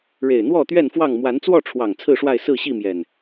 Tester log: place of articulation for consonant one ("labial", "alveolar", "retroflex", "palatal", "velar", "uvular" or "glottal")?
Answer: retroflex